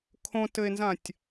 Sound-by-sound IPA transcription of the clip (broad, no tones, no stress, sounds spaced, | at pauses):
kʰ õ t ɘ e̯ n z ã tʲ